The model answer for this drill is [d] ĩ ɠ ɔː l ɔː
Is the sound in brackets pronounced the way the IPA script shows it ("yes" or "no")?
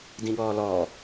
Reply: yes